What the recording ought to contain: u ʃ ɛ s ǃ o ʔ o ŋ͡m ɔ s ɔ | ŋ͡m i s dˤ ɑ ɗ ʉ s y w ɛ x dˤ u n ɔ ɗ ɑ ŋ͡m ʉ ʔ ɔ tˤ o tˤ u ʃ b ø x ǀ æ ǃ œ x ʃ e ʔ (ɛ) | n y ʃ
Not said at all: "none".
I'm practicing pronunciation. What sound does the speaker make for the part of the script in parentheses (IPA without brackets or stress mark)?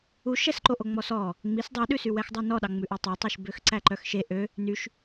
ø